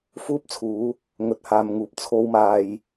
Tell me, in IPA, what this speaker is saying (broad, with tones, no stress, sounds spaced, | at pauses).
f uː˥ p̚ t͡sʰ uː˨˥ | ŋ ɵ˨ t̚ h aː˨ m ŋ uː˨ p̚ t͡sʰ o˧ w m aː˨ j